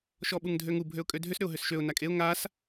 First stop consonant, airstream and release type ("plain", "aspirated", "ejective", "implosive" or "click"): implosive